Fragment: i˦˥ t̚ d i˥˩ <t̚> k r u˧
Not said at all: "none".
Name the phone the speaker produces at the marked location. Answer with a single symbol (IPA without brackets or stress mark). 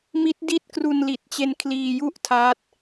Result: t̚